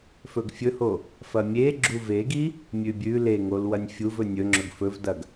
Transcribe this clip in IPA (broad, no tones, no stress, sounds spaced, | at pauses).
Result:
f ɵ ɡ fʲ ɵ h o | f ɐ mʲ e ɡ͡ǁ u v e ɡ i | mʲ ʉ bʲ ʉ l e ŋ o l w ɐ nʲ fʲ u v ɵ nʲ ɵ ŋ͡ǁ ɵ ɡ f ɵ v d ɐ ɡ